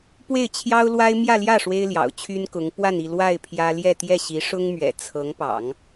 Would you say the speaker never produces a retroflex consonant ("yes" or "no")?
no